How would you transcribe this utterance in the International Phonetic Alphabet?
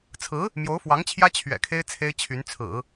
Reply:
t͡sʰ ɹ̩˧˥ | m j o˧˥ ʊ̯ f w ɑ˧˥ ŋ t͡ɕʰ j ä˥ t͡ɕʰ ɥ ɛ̰˨˩ kʰ e˥ ɪ̯ t͡sʰ e˥ ɪ̯ t͡ɕʰ y˧˥ n t͡sʰ ɹ̩˨˩˦

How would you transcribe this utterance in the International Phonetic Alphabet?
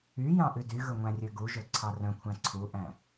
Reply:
y j ɑ̃ ʔ ʉ d y ɣ ɵ ŋʷ æ̃ rʲ ø ɡ u ʒ ɵ ǀʰ ɑ r œ̃ kʷʰ æ̃ ǀʰ u ʔ æ̃

